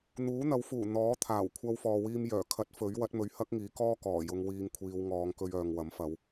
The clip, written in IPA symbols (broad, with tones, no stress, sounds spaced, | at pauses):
n̪ uː˨˥ n̪ ɐ˨˥ w f uː˨˩ n̪ ɔː˨˥ t̪ʰ aː˨˩ w kʷʰ ɐ˧ w f ɔː˨ w iː˧ m j œː˨˩ kʰ ɐ˨˥ t̚ f ɵ˨˥ ɥ w ɐ˨˥ t̚ m ɵ˨˧ ɥ h ɐ˥ k̚ ŋ iː˨˥ k ɔː˥ k ɔː˨˩ j ʊ˧ ŋ w iː˧ ŋ kʷʰ iː˨˧ w ŋ ɔː˨˧ ŋ k ɵ˧ ɥ œː˨ ŋ w ɐ˨˥ m f ɐ˨˧ w